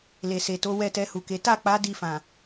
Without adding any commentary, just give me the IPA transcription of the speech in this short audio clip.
le˨se˨to˨˦ wɛ˦˨tɛ˧hu˨ke˨˦ ta˦˨k͡pa˨˦ di˦˨fã˨

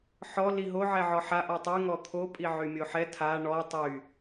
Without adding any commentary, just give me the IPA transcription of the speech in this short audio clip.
ħɔ liɦo ʕɛʕɔħa ʔɔtˤy ŋɔt̪ʰo pʼiʕymʲoħɛ tʰa ɳɔ tˤy

